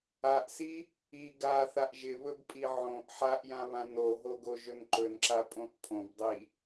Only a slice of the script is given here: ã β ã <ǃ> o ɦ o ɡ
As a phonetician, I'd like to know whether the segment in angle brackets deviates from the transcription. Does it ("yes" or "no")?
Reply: yes